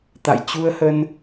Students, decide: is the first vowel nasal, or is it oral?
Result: oral